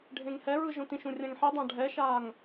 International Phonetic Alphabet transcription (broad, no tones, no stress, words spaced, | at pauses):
ɖʱẽŋhɛɹɯ ʒõtĩʃũ rʲãŋħidˤã ɖʱɛʃaːŋ